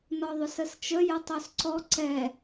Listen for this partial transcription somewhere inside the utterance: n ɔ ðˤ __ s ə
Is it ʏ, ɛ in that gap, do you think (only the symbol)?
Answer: ʏ